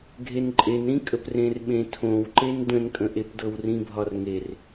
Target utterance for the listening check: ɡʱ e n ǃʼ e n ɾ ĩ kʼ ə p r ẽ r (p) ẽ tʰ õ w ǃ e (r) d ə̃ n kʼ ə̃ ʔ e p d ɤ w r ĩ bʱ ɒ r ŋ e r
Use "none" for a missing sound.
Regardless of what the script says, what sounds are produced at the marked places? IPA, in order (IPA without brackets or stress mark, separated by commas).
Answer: ɓ, n